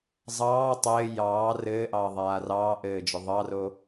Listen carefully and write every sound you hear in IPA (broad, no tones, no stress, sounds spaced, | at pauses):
zˤ ɑː tˤ ɘː j ɑː r ɘː ʔ ɑː ðˤ aː r ɑː ʔ ɘː d͡ʒ ɵ ðˤ ɑ r o